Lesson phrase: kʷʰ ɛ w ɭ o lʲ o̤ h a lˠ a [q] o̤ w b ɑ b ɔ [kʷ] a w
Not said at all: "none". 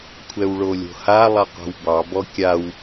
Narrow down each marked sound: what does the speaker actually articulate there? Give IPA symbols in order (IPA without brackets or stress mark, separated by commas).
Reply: q, kʲ